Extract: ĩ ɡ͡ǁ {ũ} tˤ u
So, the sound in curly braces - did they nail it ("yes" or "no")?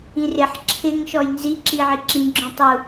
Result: no